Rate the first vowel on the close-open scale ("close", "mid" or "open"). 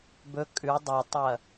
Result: mid